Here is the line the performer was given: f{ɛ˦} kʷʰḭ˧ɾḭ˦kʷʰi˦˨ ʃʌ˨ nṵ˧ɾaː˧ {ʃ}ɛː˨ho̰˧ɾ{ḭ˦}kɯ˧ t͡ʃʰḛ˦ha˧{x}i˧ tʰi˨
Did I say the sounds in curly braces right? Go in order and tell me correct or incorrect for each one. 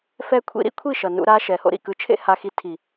correct, correct, incorrect, correct

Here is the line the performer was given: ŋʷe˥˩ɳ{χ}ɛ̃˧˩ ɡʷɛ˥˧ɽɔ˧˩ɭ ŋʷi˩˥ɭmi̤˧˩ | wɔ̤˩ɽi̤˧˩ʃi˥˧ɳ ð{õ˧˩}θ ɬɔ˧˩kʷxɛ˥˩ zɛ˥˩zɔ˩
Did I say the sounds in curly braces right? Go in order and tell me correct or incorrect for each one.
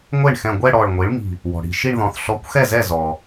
incorrect, incorrect

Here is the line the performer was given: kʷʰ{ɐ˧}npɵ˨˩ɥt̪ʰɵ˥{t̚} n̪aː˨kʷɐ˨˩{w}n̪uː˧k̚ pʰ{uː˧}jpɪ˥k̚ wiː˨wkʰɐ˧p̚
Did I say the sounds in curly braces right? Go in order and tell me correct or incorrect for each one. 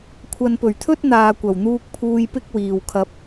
incorrect, correct, correct, correct

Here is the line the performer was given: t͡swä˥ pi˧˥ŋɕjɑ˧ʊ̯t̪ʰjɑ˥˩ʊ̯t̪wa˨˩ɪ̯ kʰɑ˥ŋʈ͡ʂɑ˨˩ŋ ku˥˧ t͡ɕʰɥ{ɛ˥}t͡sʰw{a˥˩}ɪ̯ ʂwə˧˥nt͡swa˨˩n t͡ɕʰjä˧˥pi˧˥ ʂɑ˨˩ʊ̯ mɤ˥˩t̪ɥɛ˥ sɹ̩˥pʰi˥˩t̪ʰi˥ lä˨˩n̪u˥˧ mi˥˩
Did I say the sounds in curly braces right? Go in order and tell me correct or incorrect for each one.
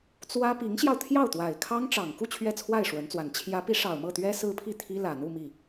incorrect, correct

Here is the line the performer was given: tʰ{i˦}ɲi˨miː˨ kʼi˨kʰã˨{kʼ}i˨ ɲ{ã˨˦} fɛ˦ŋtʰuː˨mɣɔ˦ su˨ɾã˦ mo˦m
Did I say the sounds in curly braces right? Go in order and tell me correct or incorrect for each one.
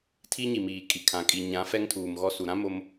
correct, correct, correct

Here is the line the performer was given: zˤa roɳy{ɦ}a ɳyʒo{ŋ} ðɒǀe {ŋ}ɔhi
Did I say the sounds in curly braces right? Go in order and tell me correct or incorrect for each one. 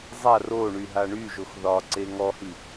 correct, incorrect, correct

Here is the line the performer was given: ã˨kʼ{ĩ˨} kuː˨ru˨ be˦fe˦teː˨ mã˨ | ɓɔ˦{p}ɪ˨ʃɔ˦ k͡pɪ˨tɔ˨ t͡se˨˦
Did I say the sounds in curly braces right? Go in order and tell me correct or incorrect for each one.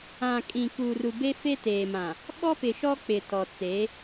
correct, correct

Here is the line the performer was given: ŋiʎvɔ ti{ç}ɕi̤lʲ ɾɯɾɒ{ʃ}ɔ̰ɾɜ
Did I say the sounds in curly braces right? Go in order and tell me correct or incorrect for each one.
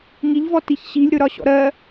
correct, incorrect

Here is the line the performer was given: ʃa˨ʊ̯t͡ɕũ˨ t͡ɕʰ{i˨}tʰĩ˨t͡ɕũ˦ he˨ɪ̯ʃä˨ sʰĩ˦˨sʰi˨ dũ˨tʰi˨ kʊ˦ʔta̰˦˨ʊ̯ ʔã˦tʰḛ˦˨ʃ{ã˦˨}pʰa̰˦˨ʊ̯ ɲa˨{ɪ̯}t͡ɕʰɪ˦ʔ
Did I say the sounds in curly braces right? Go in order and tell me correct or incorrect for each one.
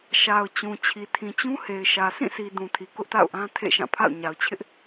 correct, correct, incorrect

